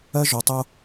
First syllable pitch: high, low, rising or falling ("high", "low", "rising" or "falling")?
high